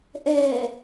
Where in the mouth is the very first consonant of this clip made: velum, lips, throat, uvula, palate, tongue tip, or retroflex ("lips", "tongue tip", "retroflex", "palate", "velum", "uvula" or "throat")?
throat